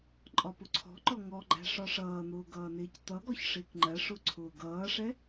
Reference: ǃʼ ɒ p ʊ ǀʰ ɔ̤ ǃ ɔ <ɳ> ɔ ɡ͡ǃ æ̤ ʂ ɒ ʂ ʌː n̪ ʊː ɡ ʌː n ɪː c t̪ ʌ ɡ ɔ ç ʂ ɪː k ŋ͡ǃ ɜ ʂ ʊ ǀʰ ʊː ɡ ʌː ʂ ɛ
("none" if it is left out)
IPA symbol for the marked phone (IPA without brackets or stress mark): ŋ